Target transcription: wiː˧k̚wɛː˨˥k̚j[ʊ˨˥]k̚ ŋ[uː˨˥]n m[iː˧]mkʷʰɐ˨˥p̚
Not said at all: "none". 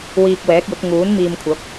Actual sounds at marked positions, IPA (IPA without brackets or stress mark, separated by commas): ʊ˨˥, uː˨˥, iː˧